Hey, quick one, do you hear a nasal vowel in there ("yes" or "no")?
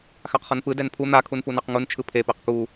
no